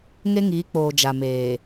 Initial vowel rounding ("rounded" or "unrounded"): unrounded